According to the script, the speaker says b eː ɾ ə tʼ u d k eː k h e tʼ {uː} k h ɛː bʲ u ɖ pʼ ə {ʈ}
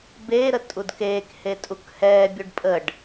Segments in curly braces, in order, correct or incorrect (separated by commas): incorrect, incorrect